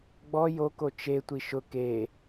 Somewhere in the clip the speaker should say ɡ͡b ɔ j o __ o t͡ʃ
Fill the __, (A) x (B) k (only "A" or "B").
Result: B